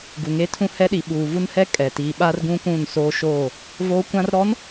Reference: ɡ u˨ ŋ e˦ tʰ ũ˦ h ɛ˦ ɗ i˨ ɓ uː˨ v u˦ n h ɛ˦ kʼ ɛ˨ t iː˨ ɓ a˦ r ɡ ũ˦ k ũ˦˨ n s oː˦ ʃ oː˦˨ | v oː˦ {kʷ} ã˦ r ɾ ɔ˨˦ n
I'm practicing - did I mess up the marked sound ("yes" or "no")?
no